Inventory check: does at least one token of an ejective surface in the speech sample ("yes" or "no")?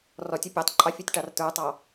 yes